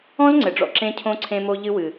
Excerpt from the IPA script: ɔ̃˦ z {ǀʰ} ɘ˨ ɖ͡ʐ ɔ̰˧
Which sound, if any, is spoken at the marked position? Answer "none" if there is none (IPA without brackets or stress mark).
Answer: ŋ͡ǀ